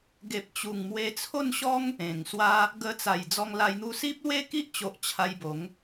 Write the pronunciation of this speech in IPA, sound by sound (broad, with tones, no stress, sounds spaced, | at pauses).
ɡ e˨ p̚ t͡ɕ u˨˩ ŋ m w e˧ t͡sʰ o˥˧ n ɕ ɔ˦ ŋ | ẽ˨˩ ŋ s w a˦ | ɡ ə˧ t͡s a˨˩ j d͡z ɔ˧ ŋ l a˧ j n̪ u˧ s i˦ p̚ l w e˥˧ k i˦ ʔ t͡ɕ o˨ ʔ t͡ɕʰ a˧ j b o˨˦ ŋ